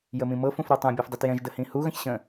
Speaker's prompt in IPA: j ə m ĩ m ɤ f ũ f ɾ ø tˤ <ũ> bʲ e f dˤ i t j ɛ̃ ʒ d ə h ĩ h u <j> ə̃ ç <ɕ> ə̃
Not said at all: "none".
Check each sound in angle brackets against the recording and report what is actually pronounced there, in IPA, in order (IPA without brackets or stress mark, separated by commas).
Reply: ũ, ɣ, ɕ